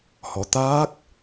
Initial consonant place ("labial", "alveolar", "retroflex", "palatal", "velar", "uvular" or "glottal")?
glottal